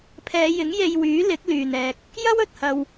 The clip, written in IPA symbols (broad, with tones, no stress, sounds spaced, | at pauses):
pʰ ɛː˨˧ j ɪ˨˥ ŋ j e˧ j w yː˨˥ l ɪ˨˥ k̚ l yː˨ n ɛː˧ k̚ | j ɐ˥ w ɵ˨ t̚ h ɐ˧ w